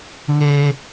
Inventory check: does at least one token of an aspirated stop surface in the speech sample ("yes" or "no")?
no